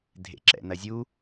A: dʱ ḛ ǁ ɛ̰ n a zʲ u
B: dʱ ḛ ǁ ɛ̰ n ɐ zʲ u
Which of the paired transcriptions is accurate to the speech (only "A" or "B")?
B